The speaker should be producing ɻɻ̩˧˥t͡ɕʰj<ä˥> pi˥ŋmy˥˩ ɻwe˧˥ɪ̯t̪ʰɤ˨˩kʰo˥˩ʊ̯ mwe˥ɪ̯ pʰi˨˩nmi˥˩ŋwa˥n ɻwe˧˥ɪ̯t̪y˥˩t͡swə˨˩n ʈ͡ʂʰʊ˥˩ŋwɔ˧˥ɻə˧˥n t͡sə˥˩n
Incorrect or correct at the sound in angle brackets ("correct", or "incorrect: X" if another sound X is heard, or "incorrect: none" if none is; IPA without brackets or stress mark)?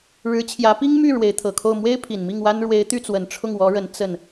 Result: incorrect: ä˧˥